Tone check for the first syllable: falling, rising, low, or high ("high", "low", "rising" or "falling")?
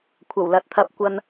low